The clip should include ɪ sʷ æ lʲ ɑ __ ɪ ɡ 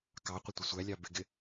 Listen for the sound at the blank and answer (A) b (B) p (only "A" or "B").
A